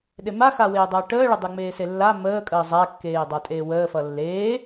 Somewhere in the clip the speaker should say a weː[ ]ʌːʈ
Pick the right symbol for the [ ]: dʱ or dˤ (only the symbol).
dˤ